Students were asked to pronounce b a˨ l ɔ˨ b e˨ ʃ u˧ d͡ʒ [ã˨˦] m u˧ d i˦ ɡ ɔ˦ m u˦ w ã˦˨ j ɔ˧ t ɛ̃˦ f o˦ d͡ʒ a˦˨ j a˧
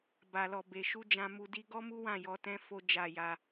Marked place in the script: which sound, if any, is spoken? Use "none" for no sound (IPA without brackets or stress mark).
ã˧